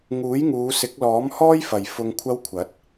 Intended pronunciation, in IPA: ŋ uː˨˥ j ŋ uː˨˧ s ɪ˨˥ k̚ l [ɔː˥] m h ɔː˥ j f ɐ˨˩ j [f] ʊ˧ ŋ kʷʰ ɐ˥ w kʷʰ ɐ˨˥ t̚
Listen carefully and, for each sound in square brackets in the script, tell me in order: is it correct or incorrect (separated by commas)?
incorrect, correct